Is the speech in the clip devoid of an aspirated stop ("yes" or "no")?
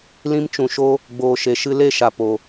yes